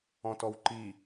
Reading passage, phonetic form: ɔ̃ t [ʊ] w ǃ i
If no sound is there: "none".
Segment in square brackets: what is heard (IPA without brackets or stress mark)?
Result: ɔ